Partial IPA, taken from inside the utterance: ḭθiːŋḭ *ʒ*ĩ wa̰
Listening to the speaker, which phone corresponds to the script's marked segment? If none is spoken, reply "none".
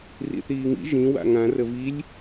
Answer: ʒ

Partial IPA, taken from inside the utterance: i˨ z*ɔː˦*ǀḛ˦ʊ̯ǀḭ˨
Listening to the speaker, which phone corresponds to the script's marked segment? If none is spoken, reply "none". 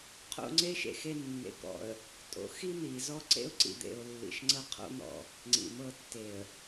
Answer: ɔ˦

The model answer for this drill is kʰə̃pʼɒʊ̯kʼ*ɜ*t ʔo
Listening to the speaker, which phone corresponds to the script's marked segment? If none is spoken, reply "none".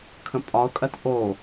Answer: ɜ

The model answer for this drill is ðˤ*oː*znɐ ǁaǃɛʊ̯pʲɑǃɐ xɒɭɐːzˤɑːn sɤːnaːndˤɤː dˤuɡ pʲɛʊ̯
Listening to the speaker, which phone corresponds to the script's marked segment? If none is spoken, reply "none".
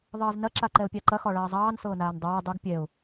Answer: ɤː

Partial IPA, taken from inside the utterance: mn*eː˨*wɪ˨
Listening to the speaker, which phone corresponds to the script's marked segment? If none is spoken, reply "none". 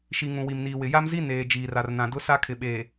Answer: iː˨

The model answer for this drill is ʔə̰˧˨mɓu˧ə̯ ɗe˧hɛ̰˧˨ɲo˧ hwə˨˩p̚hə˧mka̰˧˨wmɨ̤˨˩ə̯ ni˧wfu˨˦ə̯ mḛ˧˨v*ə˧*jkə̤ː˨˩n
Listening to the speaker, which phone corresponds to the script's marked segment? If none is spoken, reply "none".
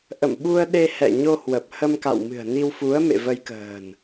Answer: ə˧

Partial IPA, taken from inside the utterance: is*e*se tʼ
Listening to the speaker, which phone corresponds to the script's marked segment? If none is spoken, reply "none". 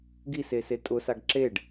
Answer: e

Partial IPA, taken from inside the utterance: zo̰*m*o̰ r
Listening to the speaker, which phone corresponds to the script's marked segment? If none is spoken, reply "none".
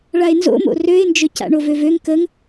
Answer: m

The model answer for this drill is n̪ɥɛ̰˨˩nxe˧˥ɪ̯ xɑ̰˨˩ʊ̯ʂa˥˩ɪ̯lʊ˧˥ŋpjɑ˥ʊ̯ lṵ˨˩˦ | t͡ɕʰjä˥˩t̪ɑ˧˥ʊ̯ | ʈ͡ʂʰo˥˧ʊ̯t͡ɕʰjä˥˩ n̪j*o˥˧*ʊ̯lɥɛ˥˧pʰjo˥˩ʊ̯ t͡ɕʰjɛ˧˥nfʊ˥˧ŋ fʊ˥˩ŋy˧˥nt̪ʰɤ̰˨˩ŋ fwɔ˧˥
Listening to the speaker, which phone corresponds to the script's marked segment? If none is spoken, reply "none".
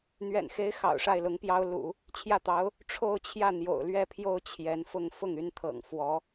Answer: o̰˨˩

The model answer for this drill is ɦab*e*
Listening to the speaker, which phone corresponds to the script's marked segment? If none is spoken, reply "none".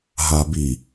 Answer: i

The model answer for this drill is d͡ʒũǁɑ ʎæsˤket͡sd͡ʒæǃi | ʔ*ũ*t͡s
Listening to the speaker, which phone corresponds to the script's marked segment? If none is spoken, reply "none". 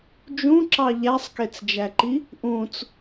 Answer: ũ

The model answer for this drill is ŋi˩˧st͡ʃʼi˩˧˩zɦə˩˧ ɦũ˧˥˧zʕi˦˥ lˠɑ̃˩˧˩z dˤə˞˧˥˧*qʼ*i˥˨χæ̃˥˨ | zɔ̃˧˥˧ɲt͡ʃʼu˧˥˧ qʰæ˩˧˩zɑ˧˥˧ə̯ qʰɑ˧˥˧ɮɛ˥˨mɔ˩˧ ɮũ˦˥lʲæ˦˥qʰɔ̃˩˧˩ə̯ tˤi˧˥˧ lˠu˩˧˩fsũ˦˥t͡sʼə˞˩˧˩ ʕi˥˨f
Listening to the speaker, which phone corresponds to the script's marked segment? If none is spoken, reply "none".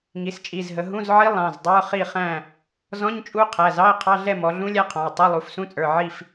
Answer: χ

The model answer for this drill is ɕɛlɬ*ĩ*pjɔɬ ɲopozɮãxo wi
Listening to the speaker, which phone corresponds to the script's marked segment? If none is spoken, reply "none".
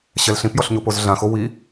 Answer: ĩ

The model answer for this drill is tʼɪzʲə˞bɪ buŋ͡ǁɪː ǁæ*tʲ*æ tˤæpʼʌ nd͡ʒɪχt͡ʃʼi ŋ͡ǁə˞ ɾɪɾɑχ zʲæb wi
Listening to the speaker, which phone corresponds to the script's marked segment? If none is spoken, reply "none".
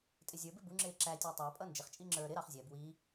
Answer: tʲ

